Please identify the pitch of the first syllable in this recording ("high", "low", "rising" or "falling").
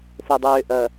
low